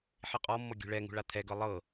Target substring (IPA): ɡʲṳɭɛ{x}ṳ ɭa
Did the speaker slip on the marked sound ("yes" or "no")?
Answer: yes